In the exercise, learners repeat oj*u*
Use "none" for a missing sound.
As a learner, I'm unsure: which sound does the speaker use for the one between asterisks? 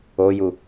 u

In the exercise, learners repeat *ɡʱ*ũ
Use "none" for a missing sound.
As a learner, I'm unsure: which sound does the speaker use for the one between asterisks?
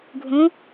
ɡʱ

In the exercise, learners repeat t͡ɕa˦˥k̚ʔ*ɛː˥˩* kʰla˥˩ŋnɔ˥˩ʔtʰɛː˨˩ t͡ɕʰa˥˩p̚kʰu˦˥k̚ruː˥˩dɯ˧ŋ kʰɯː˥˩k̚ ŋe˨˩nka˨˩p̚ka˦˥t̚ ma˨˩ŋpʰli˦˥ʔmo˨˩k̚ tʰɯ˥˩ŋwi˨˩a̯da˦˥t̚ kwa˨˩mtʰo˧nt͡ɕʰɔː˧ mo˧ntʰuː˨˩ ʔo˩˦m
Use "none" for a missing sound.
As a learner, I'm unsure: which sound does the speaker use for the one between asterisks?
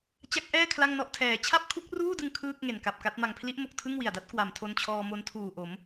ɛː˥˩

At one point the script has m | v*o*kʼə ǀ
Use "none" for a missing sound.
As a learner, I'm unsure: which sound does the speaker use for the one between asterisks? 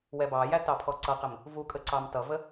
u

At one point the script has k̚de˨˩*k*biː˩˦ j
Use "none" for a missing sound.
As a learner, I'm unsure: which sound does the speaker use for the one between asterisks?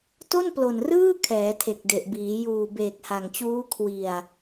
ʔ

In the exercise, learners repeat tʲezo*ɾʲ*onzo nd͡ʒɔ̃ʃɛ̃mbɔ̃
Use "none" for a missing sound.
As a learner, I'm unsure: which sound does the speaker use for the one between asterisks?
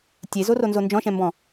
r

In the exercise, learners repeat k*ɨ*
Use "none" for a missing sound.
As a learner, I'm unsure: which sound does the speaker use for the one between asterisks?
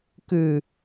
ɨ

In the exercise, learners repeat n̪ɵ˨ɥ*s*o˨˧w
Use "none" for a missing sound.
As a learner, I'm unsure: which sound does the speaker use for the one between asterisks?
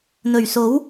s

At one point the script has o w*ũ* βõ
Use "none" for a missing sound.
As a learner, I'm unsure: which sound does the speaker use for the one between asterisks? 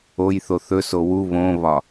u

